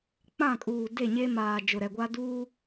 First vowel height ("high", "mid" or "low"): low